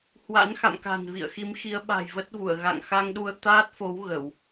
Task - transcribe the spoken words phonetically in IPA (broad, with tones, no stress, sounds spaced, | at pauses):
h w a̰˧˥ n x a̰˧˨ m k a̤˨˩ n v ḭ˧˨ ə̯ x i˨˦ m x i˨˦ ə̯ ɓ a̤˨˩ j v ə˦˥ t̚ v u˧˩ ə̯ ɣ a̰˧˨ ŋ x a˧ ŋ ɗ u˧ ə̯ t̪ aː˦˥ t̚ f o˨˦ w ɣ ə˧˩˨ w